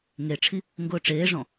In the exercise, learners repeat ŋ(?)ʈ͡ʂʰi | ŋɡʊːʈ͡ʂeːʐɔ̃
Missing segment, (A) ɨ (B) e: B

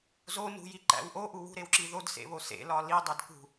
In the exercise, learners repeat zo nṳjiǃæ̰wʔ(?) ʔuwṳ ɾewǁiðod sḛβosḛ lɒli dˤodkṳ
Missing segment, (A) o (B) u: A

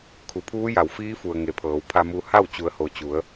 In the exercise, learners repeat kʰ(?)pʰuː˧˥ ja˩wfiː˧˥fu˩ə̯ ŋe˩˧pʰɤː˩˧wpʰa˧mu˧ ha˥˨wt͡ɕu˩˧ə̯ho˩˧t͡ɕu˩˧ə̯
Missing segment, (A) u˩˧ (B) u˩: A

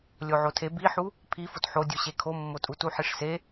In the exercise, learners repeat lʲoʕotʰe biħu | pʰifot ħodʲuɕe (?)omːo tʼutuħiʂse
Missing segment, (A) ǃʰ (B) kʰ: B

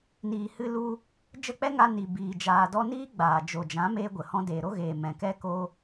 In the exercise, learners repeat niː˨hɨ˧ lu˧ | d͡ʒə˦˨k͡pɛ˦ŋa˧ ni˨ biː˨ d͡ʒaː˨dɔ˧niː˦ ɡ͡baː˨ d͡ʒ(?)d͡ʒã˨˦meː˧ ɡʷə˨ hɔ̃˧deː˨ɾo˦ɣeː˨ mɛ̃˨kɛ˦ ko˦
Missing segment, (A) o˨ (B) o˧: A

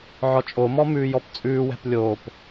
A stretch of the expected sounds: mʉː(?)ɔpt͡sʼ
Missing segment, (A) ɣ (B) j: B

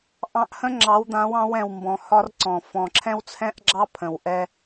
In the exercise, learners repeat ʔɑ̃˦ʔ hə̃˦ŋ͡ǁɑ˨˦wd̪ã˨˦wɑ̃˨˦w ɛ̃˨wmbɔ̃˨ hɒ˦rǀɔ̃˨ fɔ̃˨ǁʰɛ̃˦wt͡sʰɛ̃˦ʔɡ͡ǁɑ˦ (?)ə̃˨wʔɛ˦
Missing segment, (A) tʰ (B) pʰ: B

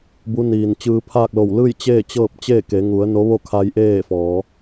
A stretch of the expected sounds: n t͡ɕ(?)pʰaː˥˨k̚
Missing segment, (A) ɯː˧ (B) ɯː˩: A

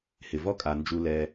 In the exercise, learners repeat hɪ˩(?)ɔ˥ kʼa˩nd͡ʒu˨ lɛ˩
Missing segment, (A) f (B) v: B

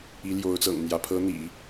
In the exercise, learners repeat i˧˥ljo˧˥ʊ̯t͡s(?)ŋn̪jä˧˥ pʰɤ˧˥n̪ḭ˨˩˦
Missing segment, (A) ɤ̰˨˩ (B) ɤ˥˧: A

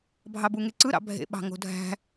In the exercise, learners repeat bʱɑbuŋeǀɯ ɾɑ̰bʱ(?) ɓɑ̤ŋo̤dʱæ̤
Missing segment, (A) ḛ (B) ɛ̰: A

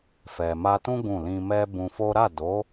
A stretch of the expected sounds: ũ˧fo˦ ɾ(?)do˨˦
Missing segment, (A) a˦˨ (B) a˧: A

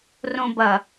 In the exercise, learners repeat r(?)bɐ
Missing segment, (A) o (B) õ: B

